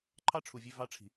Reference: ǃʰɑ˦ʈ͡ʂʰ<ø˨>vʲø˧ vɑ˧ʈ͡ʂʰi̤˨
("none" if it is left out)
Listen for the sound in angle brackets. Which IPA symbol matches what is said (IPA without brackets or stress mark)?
u˨